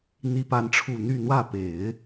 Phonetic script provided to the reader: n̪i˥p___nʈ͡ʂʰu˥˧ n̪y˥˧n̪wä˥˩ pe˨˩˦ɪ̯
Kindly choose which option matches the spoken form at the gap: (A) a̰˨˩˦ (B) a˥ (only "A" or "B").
B